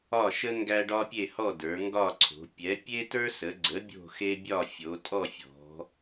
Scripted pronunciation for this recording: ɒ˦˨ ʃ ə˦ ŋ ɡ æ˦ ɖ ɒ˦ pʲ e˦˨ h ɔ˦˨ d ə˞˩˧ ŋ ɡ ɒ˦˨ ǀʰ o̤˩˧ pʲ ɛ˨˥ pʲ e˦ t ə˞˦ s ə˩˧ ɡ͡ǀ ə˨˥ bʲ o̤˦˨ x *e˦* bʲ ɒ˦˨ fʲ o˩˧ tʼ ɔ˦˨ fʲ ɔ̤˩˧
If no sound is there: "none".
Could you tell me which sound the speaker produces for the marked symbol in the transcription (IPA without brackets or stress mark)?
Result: e˦